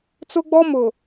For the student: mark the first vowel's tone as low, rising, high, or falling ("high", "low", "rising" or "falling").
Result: high